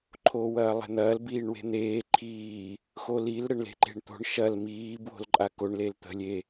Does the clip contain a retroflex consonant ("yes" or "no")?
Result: yes